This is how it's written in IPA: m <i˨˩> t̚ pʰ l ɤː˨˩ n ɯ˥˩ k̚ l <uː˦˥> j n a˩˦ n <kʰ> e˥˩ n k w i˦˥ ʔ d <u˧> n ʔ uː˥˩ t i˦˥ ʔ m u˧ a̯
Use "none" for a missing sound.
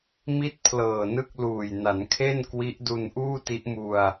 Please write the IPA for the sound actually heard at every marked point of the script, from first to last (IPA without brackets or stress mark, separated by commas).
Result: i˥˩, uː˨˩, kʰ, u˧